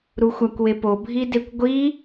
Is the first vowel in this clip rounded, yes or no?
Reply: yes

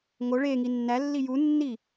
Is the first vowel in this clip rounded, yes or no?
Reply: yes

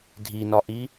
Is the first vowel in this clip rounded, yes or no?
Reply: no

